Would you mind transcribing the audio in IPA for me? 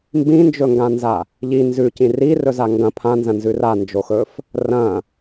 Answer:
m b ĩ n d͡ʒ ɵ ŋ ɡ ã n z a | ʎ i n z ʉ c ĩ r i r ɵ z a ŋ ɡ ɐ̃ pʰ ã n z ɐ̃ n z ʉ r a n d͡ʒ o x ɵ f | r ɐ̃

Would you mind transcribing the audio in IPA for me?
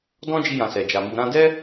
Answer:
d ɔ̃˦ d͡ʒ i˧ j ã˨ s ɛ˨ d͡ʒ a˨ m u˨ ɾ ã˧ d ɛ˦

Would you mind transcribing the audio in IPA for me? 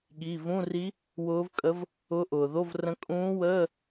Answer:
ɠ i˩˧˩ v ũ˧˥˧ r i˧˥ | w ʊː˧˥ v kʼ ə˧˥ v | ʊ˧˥ ʔ ʊː˩ ð o˧˥˧ v r ə̃˧˥ kʼ ũː˧˥ w əː˧˥˧

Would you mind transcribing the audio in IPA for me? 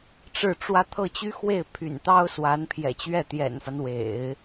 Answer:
ʈ͡ʂ ɻ̩˥˩ ʈ͡ʂ w ä˥ t̪ʰ ɤ˥˩ t͡ɕ y˥ x w e˥˩ ɪ̯ pʰ y̰˨˩ n t̪ ɑ˥ ʊ̯ s w a˧˥ n pʰ j ɛ̰˨˩ t͡ɕ ɥ ɛ˥˩ t̪ j ɛ̰˨˩ n f a˦ n w ḛ˨˩˦ ɪ̯

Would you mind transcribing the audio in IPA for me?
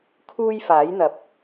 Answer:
kʰ uː˥ j f aː˨˥ j n̪ ɐ˨˥ p̚

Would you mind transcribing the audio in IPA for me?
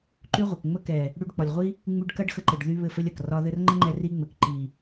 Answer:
ǃ y˦ ʁʷ ɐ˨ k ŋ͡m ə˦ k ɛ˨ | ɽ y˧ ɖ k͡p ɒ˨ lʲ ʁʷ i˦ | ŋ͡m y˦ ɖ k ɐ˦ ɖ x ə˧ ǃ ɘ˨ ɖ ð y˧ β ɘ˦˨ f ɘ˦ lʲ ɐ˨ k r ɒ˧ ð ɘ˧ r ŋ͡ǃ ə˦ ŋ͡ǃ ɛ˧ r i˦ ŋ͡m ɘ˨ k ǃ i˨

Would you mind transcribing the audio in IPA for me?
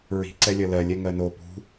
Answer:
ɹ i̤ ǀ ɛ lʲ ɐ l ɜ lʲ ɛ ŋ ɜ n o p ṳ

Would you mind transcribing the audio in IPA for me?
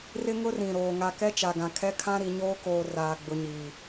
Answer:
r ɪ˦ ŋ ʊ˦ r ĩ˨ ɾ oː˨ ŋ a˨ k ɛ˦ t͡ʃ a˨ ɡ ã˨ kʰ ɛ˦ kʰ ã˦ ɾ i˨ ɲ oː˦ k oː˨ r aː˨ ɡ͡b ʊ˨ ɲ iː˨

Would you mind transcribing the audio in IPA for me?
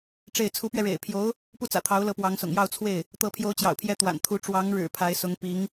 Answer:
ʈ͡ʂ e˥˩ ɪ̯ t͡sʰ u˧˥ p ɥ ɛ˧ ɻ ḛ˨˩ ɪ̯ pʰ j o˧˥ ʊ̯ | p u˥˩ t͡s ä̰˨˩ t̪ʰ ɑ˧˥ ʊ̯ l ɤ˧˥ p w ɑ˧˥ ŋ s ʊ̰˨˩ ŋ j ɑ˥˧ ʊ̯ t͡sʰ w e˥˩ ɪ̯ | t̪ ɤ˧˥ pʰ j o˧˥ ʊ̯ t͡ɕ j ɑ̰˨˩ ʊ̯ pʰ j ɛ˧˥ t̪ w a̰˨˩ n t̪ʰ u˧˥ ʈ͡ʂ w ɑ˧˥ ŋ ɻ ɻ̩˨˩ pʰ a˧˥ ɪ̯ s ʊ˧˥ ŋ p i˧˥ ŋ

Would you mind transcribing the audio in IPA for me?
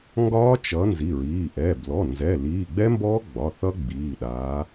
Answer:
ŋ ɡ ɒː˦˥ t͡ʃ ʌ˨˦ n z i˩˧˩ ɹ iː˩˧˩ ʔ ɛ˩˧˩ b l ɔ˩˧˩ n z ɛ˩˧˩ l iː˩˧˩ ɡ͡b ɛ˦˥ m b ɔː˦˥ ɡ͡b ɒ˩˧˩ θ ʌ˦˥ ɡ͡b iː˩˧˩ ɗ aː˨˦

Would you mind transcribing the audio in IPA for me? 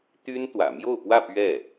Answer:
t̪ y˥ n t̪ w ä̰˨˩ m j o˥˧ ʊ̯ p w ä˥˧ p ɥ ɛ˥˩

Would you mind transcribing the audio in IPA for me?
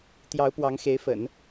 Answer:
t̪ j ɑ˧˥ ʊ̯ p w ɑ˧˥ ŋ x e˧˥ ɪ̯ f ə̰˨˩˦ n

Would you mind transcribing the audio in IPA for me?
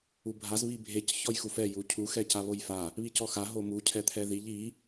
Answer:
u bʱ a z β i bʱ e c ç ɔ j x u f ɛ j u cʰ u x ɛ c a β o j f a | β i c ɔ x a ɦ o m u cʰ ɛ t̪ʰ ɛ ð i ʎ i

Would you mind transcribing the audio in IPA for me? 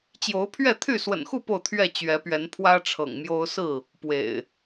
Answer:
t͡ɕ j o˨˦ ʊ̯ pʰ ɥ ɛ˥˨ t̪ʰ y˥˨ s w ə̰˨˩ n x u˥˨ p o˥˨ ʊ̯ t̪ʰ ɥ ɛ˥˨ t͡ɕ ɥ ɛ˨˦ p ɥ ɛ˨˦ n pʰ w ä˦ ʈ͡ʂʰ ɤ̰˨˩ ŋ m j o˦ ʊ̯ s ɹ̩˥˨ | p w ḛ˨˩ ɪ̯

